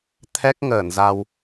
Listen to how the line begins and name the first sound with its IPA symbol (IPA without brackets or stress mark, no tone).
t̪ʰ